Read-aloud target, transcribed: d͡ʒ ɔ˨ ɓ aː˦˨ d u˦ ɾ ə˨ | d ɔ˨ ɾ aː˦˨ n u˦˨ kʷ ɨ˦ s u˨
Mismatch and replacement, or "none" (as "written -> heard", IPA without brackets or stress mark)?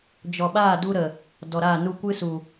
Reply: none